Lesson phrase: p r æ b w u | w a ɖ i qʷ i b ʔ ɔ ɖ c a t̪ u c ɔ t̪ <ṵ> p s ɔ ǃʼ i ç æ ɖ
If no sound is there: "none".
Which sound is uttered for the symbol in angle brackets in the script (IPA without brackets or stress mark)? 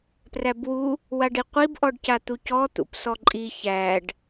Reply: ṵ